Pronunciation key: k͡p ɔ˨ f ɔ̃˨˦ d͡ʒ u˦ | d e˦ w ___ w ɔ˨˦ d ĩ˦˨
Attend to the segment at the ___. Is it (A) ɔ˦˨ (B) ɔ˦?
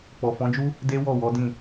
A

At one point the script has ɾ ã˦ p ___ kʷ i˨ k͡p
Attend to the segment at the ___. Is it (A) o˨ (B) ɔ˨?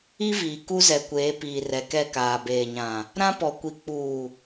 B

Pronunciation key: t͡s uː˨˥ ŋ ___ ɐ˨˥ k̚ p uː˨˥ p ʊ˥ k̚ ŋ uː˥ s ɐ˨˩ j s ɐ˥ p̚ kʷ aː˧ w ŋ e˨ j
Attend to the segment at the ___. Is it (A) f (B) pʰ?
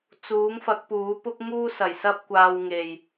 A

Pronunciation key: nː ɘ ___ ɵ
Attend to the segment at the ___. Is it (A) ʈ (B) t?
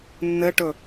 A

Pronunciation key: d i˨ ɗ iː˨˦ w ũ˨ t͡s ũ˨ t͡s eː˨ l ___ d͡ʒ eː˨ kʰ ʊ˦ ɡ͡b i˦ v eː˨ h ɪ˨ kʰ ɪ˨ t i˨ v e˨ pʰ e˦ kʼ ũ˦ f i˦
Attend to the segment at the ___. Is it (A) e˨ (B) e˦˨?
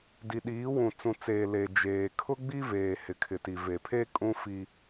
A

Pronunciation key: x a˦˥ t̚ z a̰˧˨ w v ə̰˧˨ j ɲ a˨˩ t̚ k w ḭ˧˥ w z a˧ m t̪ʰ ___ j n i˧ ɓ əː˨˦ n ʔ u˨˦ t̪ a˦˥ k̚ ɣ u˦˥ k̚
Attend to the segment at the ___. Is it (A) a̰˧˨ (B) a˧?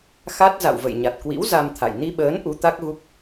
A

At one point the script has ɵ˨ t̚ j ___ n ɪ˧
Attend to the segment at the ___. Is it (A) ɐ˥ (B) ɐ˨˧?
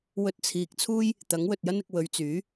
A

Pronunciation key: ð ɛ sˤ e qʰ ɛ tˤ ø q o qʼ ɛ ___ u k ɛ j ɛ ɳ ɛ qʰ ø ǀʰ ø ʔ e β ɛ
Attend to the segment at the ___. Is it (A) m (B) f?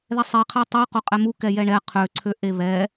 A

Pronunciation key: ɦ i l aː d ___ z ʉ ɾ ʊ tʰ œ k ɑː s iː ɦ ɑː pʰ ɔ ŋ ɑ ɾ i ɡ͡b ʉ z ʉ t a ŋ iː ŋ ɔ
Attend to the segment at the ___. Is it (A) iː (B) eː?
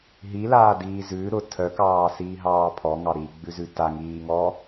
A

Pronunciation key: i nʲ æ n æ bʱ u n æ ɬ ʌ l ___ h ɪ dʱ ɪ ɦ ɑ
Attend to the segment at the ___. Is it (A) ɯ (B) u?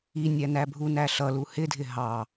B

